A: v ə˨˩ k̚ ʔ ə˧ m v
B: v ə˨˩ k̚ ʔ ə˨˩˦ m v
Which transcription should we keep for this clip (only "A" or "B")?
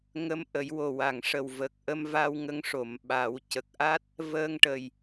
A